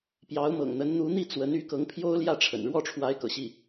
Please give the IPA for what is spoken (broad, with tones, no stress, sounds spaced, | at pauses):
p j ɑ˧˥ ʊ̯ m ɤ̰˨˩ ŋ n̪ ə˧˥ n n̪ u˧˥ n̪ i˥˩ t͡s w ə˧˥ n y˧˥ k ɤ˧˥ ŋ pʰ j o˥ ʊ̯ l j ä˥˩ ʈ͡ʂʰ ə̰˨˩ n ɻ w ɔ˥˩ ʈ͡ʂʰ w a˧˥ ɪ̯ k ɤ̰˨˩ ɕ i˥˩